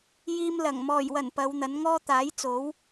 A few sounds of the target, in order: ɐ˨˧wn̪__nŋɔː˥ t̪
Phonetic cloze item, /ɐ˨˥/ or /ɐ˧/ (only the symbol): ɐ˨˥